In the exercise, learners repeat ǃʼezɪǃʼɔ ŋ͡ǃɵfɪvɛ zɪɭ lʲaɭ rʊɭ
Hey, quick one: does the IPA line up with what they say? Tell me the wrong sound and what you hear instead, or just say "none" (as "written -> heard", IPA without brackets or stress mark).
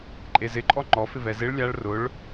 ɵ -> ɔ